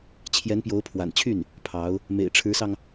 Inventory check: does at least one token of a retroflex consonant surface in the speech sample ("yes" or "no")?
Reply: yes